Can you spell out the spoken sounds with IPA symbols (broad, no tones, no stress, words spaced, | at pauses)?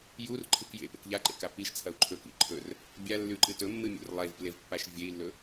jurǃʰɨk jḛpḛk ʎaǃḛka piʃt͡sʰɐu̯ ǃʰɵkḭ ǃʰɵr | bʲalːʉǃɨ tɵmːɨmʲo̰r lˠevplevpːaʃ vʲei̯lːɵ